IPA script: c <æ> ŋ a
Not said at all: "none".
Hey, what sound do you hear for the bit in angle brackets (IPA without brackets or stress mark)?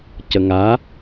ə